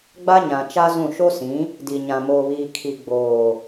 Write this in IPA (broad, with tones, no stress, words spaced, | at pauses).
ɡ͡ba˦ɲã˨ t͡ʃa˦zũ˦˨ ʃo˦sĩ˨˦ | di˨ɲã˨ moː˨βiː˨ kʰi˨ ɡ͡boː˨